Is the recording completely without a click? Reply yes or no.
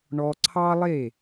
no